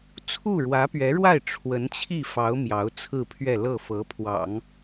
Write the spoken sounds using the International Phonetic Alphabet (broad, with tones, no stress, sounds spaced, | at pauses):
t͡sʰ u˥˩ ɻ w ä˧˥ p ɥ ɛ˧˥ ɻ w a˥˩ ɪ̯ ʈ͡ʂʰ w ə˧˥ n t͡ɕʰ i˥˩ f ɑ˧˥ ʊ̯ m j ɑ˧˥ ʊ̯ t͡sʰ ɹ̩˥˧ pʰ ɥ ɛ˥˧ l ɤ˥˩ f ɤ˧˥ pʰ w ɑ̰˨˩˦ ŋ